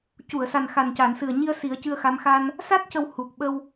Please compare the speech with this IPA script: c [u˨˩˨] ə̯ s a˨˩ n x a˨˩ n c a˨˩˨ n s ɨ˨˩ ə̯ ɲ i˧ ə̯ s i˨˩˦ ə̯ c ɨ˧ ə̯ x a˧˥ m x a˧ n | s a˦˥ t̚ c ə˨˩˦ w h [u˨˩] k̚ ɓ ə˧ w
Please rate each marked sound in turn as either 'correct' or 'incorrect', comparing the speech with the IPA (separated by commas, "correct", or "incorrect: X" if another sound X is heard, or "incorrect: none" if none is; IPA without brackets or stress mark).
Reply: correct, correct